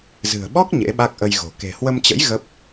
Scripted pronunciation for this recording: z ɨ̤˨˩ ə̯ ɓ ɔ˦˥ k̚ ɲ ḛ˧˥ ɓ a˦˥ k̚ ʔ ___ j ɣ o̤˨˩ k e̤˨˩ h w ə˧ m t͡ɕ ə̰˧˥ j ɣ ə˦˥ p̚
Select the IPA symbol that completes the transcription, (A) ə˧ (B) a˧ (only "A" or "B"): A